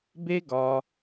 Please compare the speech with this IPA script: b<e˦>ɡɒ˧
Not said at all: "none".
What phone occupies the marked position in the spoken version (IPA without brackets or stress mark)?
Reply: e˦